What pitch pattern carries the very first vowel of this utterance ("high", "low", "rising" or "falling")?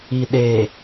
low